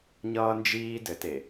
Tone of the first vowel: high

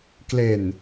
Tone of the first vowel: low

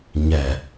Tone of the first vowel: low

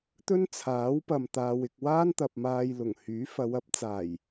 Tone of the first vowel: high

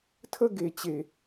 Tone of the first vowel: high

